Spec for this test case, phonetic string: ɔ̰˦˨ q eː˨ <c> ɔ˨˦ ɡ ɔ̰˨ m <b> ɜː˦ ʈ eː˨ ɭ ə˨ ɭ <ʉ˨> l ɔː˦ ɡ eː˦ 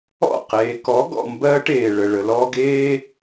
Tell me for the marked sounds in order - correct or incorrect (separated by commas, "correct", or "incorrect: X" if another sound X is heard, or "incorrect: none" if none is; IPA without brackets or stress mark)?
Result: incorrect: k, correct, incorrect: ə˨